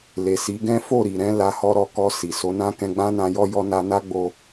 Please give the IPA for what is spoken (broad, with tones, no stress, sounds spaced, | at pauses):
l e˨ s i˨˦ ɡ ɛ̃˦ f o˦˨ ɾ i˨ ɾ ɛ̃˨˦ l a˧ h ɔ˧ ɾ ɔ˧ k ɔ˧ s i˨ s o˨˦ n ã˦ k ɛ̃˧ ɡ͡b ã˦ n ã˧ j ɔ˦ j ɔ˧ n a˧ n a˦ ɡ͡b o˧